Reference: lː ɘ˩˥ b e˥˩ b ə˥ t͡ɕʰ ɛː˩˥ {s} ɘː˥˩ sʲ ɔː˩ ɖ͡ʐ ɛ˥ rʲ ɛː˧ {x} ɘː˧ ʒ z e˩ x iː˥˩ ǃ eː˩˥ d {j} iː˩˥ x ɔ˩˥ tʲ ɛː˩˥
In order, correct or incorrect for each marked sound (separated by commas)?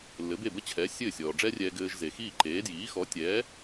incorrect, incorrect, correct